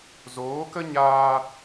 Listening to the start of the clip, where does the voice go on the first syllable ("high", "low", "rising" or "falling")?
rising